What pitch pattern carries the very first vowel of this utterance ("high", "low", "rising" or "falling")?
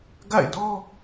falling